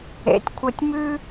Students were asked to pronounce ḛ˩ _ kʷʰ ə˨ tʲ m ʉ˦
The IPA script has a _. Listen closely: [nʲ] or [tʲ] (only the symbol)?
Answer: tʲ